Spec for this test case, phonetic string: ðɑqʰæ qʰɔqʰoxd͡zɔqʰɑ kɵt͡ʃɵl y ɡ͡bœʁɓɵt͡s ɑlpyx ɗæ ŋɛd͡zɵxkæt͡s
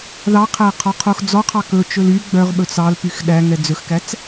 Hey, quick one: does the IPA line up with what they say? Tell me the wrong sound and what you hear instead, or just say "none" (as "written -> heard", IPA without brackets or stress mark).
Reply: none